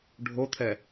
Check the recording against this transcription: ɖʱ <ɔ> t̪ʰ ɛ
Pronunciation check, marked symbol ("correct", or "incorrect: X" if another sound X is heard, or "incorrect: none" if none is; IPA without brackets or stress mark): incorrect: o